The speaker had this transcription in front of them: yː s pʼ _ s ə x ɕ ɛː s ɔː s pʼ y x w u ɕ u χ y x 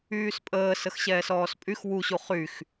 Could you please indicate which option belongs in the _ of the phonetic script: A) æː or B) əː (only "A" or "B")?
B